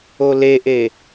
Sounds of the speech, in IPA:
o l e ʔ e

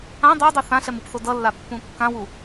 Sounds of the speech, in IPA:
ã dˤ a dˤ ɯ θ ã ɬ ɛ m ɯ p θ o d ʌ lː a pː ũ kː ã w u

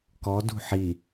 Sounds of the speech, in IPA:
k ɔ d ṳ ħ i

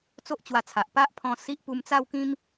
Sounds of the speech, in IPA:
t͡s o˦ ʔ t͡ɕ w a˧ t͡sʰ a˨ ʔ p a˦ ʔ pʰ ɔ̃˧ s i˦ ʔ p u˧ m t͡s a˥˧ w k ĩ˦ m

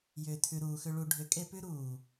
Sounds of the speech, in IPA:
j ʏː˨ tʰ ʉ˨ ɾ uː˨ x ʏ˧ ɭ u˨ ɖʱ ʏ˨˦ kʼ e˧ p ʉ˦ ɾ uː˨

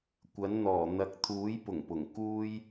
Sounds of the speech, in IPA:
kʷ ɐ˨˥ n n̪ ɔː˨˩ n̪ ɐ˨˥ k̚ t̪ʰ uː˨˥ j p ʊ˨˩ ŋ p ʊ˨˩ ŋ k uː˥ j

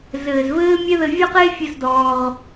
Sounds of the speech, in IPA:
z ɘː˨ z v ɘː˦ mʲ ɛ˦ ð ɘ˧ vʲ ɔ˦ q e˦ fʲ ɘ˦ z d ɔː˧ ʁ

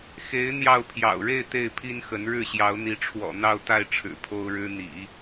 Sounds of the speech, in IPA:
x e˧˥ ɪ̯ n̪ j ɑ˥˩ ʊ̯ pʰ j ɑ̰˨˩ ʊ̯ ɻ e˥˧ ɪ̯ t̪ e˥˩ ɪ̯ pʰ i˥ n x ə˧˥ n ɻ ɻ̩˥˩ ɕ j ɑ˧˥ ʊ̯ n̪ i˧˥ ʈ͡ʂʰ w ɔ̰˨˩ n̪ ɑ˥˧ ʊ̯ t̪ a˥˩ ɪ̯ ʈ͡ʂʰ ɻ̩˨˩ pʰ o˥ ʊ̯ ɻ ɻ̩˥ n̪ ḭ˨˩˦

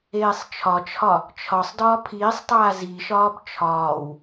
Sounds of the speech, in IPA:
eː sˤ t͡ʃʰ ɒ t͡ʃʰ ɒ | t͡ʃʰ ɒ sˤ d ɒː pʰ iː sˤ tˤ aː z i ʃ ɒː b t͡ʃʰ ɒː w

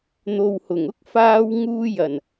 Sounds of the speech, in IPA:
n̪ o˨ w h ʊ˨˩ ŋ ʊ˥ k̚ f aː˧ w ŋ uː˧ j ɐ˨˩ n

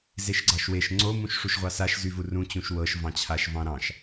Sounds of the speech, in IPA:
z e ʃ ɡ͡ǀ ɑ ʃ w e ʃ ŋ͡ǀ o m ũ ʃ ʂ u ʃ ʁʷ ɑ s a ʃ z y v u r ũ t͡ɕ ũ ʃ w ɤ ʃ v ɑ̃ t͡ɕʰ a ʃ v ɑ̃ ɾ ɑ̃ ʃ

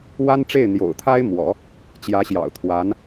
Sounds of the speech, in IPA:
w a˥ n ʈ͡ʂ e˥˩ ɪ̯ n̪ j o̰˨˩ ʊ̯ t̪ʰ a˥ ɪ̯ m w ɔ̰˨˩˦ | t͡ɕ j ä˧˥ ɕ j ɑ̰˨˩ ʊ̯ t̪ʰ w a˧˥ n

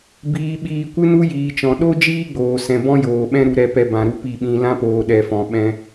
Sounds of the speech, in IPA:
b iː˧ ɓ iː˧ kʷ ɨ˦ n u˦ j iː˨ t͡ʃ ɔ̃˨ ɗ o˦ d͡ʒ iː˦ ɡ͡b oː˨ s ɛ̃˨ b ɔ̃˦ j oː˨ ɓ ɛ̃˦ ɾ u˦ ɾ ɛ˦ p ɛ˦ b ã˧ ɾ u˦ p i˦˨ ɓ ĩ˧ l ã˦ p oː˨ ɗ ɛ˨ f ɔ̃˨ ɓ ɛ̃˧

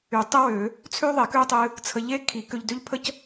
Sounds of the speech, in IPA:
y˨˩˦ tˤ ə˥ w ø˨˩˦ | t͡sʰ ø˥ ðˤ e˨˩˦ k ø˥ tˤ ɨ˧ | t͡sʰ ə˧ ʎ e˥ kʰ i˨˩˦ k ø˧ ʎ d ø˥ ʎ pʰ ə˥ c

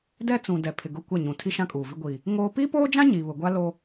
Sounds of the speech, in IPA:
d ɛ˦ t͡s ũ˨ d ɛ˨ pʰ ɪ˨ ɡ ʊ˦˨ kʷ ɛ˦˨ ɲ ũ˨ tʰ i˦ ʃ ã˦ kʼ uː˨ v i˦ ɡʷ iː˨ | ŋ oː˦ p iː˦ p oː˦ d͡ʒ ã˦ ɲ i˨ β ʊ˨ ɡʷ a˦ l o˦

